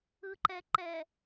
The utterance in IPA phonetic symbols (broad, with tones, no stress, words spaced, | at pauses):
ɯ˨ǃɛ˨ǃɛ˨